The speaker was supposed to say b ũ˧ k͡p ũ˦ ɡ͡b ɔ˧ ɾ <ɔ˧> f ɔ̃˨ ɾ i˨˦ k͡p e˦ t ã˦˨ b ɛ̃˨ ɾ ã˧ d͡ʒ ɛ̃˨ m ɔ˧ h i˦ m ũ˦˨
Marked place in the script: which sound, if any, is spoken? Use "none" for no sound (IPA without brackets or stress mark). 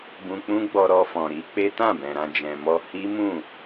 ɔ˧